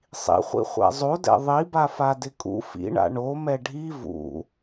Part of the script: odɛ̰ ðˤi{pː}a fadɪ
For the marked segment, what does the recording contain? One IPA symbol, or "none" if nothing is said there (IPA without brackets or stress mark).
b